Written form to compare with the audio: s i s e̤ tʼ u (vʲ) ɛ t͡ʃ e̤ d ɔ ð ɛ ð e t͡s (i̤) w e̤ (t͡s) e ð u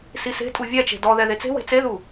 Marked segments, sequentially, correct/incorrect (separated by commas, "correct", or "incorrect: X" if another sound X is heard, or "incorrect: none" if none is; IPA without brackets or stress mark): correct, incorrect: e̤, correct